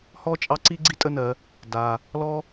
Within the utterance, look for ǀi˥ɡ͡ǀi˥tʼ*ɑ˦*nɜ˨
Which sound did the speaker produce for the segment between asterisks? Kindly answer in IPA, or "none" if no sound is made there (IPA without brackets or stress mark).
ə˦